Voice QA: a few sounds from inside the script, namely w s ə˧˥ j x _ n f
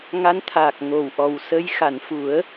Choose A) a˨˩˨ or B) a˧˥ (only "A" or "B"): A